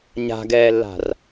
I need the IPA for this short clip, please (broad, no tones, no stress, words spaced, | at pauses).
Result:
ɲa̤ɡɛːlːa̤r